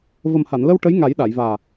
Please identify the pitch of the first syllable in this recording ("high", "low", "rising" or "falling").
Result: low